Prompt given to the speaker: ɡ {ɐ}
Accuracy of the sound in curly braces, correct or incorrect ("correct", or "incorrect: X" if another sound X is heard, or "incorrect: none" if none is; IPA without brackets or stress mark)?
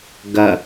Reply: correct